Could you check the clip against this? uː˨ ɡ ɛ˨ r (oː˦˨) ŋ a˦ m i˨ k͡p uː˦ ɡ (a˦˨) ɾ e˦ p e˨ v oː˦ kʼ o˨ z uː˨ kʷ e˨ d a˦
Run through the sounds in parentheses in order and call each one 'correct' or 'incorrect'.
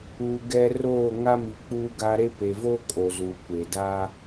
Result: correct, incorrect: a˦

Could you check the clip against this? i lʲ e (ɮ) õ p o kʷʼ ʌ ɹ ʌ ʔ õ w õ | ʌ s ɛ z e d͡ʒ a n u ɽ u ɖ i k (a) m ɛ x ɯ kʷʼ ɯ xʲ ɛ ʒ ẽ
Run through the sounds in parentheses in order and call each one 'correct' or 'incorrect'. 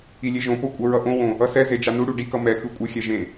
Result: incorrect: ʒ, incorrect: ʌ

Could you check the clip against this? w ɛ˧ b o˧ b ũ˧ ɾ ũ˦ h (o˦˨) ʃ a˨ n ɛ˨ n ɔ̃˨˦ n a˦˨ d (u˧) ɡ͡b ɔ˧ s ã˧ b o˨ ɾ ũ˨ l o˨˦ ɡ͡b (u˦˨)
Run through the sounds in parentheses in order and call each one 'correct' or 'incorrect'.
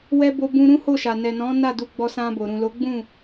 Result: correct, correct, incorrect: ũ˦˨

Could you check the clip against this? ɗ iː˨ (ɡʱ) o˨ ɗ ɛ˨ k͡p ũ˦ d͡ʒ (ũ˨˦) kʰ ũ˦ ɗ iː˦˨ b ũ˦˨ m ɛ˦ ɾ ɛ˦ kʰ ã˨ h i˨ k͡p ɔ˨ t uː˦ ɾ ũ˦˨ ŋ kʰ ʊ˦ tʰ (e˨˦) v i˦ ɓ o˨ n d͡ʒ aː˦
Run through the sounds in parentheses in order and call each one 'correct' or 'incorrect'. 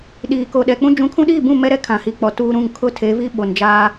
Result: incorrect: k, correct, correct

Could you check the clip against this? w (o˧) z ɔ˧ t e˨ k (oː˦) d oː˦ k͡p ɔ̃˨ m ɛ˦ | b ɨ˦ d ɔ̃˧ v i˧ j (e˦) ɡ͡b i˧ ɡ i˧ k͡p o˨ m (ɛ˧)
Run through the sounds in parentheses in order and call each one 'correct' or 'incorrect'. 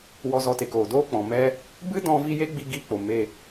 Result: incorrect: ɔ˧, incorrect: oː˨, correct, incorrect: e˧

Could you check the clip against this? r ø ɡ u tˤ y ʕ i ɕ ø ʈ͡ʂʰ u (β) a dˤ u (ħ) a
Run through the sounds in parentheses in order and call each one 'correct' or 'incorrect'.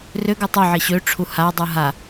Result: incorrect: h, incorrect: ɦ

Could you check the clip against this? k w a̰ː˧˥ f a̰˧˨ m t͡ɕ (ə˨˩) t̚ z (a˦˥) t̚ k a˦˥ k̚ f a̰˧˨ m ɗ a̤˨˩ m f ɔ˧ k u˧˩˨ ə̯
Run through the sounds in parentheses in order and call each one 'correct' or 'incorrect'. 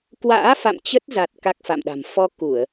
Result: incorrect: ə˦˥, incorrect: a˨˩

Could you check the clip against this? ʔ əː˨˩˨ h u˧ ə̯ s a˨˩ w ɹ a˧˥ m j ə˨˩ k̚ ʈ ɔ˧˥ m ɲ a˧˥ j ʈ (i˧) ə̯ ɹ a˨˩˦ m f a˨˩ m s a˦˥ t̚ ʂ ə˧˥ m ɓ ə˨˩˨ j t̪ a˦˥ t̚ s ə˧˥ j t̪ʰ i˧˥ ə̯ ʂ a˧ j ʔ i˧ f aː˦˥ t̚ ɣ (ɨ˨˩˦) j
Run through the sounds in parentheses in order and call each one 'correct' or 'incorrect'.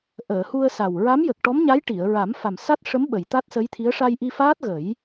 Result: incorrect: i˨˩˨, incorrect: ə˨˩˦

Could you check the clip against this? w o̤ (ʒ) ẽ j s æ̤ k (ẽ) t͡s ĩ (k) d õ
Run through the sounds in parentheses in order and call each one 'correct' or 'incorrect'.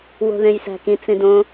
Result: incorrect: ð, incorrect: ĩ, incorrect: none

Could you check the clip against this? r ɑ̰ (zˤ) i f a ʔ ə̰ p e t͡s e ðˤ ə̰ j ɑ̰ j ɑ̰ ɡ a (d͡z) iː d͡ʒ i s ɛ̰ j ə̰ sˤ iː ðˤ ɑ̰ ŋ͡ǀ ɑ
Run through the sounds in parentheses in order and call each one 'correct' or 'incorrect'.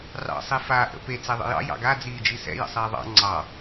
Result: incorrect: sˤ, correct

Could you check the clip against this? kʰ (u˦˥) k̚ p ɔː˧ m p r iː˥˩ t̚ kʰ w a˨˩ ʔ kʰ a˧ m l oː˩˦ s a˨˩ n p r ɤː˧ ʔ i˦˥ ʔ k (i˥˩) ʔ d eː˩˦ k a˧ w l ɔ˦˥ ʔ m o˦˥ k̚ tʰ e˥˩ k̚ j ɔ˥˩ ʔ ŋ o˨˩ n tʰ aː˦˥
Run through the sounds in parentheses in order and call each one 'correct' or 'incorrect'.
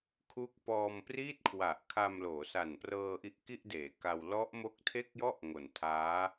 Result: correct, correct

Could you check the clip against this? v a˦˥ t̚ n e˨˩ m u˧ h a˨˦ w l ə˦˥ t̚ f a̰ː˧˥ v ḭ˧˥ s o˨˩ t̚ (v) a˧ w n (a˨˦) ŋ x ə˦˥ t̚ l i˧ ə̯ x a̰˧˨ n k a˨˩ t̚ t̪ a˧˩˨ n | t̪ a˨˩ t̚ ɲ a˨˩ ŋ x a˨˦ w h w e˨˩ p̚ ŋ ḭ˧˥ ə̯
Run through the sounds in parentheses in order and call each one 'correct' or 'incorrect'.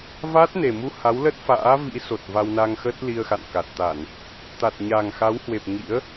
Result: correct, incorrect: a˧

